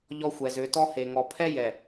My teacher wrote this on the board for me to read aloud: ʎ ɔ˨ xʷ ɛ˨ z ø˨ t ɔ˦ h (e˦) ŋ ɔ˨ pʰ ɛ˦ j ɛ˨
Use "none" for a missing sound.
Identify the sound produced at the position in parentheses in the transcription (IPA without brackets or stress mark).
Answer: e˨